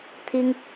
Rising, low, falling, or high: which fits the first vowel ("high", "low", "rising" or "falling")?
high